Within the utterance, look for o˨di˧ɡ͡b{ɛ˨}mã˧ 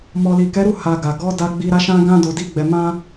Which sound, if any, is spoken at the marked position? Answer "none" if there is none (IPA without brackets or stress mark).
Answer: ɛ˨